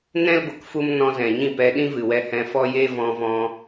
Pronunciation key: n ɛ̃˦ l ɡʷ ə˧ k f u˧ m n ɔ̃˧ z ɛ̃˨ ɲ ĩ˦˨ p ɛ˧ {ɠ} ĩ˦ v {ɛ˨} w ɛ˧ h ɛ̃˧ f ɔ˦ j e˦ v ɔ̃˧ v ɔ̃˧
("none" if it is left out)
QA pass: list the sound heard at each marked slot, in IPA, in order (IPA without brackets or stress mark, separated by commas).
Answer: ɗ, ɨ˨